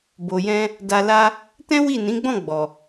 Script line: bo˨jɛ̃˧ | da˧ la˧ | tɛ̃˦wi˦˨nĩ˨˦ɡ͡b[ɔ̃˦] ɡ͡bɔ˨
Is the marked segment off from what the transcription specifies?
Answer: yes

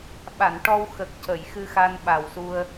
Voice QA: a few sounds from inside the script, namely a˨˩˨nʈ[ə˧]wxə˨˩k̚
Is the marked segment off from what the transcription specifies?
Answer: yes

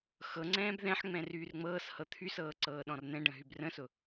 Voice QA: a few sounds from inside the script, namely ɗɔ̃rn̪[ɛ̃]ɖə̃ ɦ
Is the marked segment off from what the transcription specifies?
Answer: no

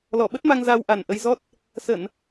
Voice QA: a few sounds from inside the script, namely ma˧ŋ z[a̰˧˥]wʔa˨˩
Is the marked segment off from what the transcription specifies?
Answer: yes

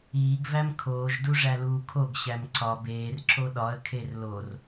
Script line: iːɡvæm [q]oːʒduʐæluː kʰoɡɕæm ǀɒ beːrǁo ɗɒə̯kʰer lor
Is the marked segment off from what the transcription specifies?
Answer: yes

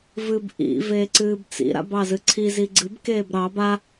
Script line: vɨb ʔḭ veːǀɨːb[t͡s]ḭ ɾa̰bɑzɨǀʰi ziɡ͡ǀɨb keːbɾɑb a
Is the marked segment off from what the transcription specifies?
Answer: no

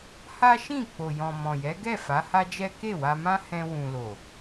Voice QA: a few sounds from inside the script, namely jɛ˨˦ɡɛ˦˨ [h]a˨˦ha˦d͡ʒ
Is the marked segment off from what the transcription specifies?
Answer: yes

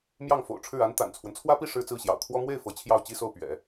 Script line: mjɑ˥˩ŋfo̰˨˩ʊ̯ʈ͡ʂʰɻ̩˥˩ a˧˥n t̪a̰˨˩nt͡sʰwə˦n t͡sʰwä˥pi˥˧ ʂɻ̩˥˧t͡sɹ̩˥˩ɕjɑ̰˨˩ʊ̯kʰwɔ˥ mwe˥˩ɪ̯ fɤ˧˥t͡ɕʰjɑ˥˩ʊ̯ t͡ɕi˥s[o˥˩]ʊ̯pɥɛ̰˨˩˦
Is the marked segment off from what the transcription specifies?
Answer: no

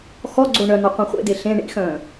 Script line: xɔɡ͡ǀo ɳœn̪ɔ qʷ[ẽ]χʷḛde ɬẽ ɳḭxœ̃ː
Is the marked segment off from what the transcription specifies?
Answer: yes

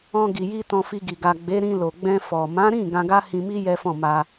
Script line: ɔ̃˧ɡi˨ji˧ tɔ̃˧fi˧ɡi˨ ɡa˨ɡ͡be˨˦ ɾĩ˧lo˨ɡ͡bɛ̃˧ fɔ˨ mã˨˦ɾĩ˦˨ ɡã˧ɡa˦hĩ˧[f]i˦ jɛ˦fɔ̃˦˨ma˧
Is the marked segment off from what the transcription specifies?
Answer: yes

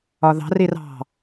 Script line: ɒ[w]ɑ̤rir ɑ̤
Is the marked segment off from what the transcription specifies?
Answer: yes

